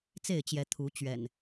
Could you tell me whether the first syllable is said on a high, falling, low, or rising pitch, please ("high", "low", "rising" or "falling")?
falling